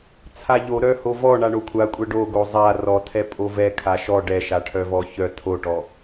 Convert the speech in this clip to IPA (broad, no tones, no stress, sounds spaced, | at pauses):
t͡sʰ a ʎ o ɾ œ h o v ɔ ɳ a ɳ o kʷʰ a kʷʼ ɛ ɖ o ɡ o zˤ a r ɔ tʰ ɛ pʼ o v ɛ kʰ a ʃ ɔ ɖ ɛ ʃ a ʈʰ œ v ɔ ç œ tʰ o ʈ ɔ